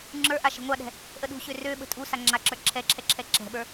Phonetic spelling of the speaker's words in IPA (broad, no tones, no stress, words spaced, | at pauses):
ŋ͡ǁə˞ʔa ʃə̤ŋʷaɗɛ̤ | ʔəɗṳɕø røɓə̤ tʼusa ŋ͡ǁaǁə˞ ǁʰɛǁʰɛ ǁʰɛǁɛ̤ɓə˞